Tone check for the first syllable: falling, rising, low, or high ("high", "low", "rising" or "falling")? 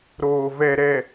low